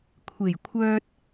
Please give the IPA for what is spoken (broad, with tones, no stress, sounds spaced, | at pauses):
kʷʰ e˨˩ j kʷʰ œː˧ t̚